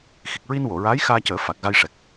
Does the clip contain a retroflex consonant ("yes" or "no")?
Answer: yes